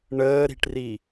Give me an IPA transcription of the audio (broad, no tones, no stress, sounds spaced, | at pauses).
ɳ əː ɾ i̤ ʈ r i